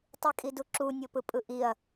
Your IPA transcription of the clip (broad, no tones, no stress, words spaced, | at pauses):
tˤikʼiduǁu nʲɤpɯpʼɯʔiɐ̯